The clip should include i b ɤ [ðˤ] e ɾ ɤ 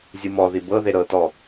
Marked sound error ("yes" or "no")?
yes